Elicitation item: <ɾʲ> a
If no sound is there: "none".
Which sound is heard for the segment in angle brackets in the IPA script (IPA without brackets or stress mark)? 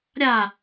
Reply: ɾʲ